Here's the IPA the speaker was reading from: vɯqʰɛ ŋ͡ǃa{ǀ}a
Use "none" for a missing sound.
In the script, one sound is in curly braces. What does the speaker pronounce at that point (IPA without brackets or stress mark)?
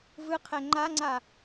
ŋ͡ǀ